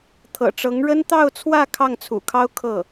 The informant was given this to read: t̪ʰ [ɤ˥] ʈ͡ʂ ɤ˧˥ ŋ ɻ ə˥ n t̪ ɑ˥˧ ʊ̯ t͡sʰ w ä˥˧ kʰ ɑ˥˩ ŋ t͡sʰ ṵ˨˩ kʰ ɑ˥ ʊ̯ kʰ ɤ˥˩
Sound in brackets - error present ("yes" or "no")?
yes